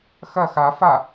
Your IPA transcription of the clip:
x ɐ x a f a

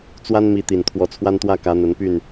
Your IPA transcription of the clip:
t͡s w a˦ n m i˨˦ t̪ i˨˩ n t̪ʰ w ɔ˨˦ t͡sʰ w a˦ n t̪ w ä˦ k ä˨˦ n̪ ə˨˦ n p y˥˨ n

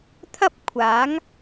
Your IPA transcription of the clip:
t̪ʰ ɐ˥ p̚ kʷʰ aː˨˥ ŋ

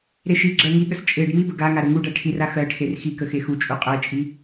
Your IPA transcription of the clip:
ɾ e ʃ i ɡ͡ǁ ɜ ŋ i ɠ ə s t͡ʃʼ e ɖ m i b ə ɡ a ŋ a ɾ ə ŋ u ɖ a ʈʰ i r a x ɜ ʈʰ e r x i k ə x e x u t͡ʃʼ u qʼ ɜ t͡ʃʼ i

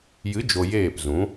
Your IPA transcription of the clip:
j ɨ˨˦ d͡ʒ o˨ j eː˦˨ p z ũ˨˦

